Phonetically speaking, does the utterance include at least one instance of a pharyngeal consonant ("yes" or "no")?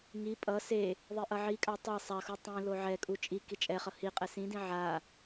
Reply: yes